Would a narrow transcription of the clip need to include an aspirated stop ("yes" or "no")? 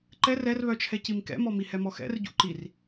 yes